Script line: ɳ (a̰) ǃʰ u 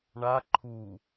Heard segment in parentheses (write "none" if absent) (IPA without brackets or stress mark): a